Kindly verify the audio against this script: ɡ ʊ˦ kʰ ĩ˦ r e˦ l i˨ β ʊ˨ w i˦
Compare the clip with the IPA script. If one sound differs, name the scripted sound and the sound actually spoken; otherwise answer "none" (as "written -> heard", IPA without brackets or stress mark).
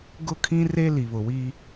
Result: none